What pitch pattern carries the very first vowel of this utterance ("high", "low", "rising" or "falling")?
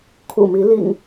low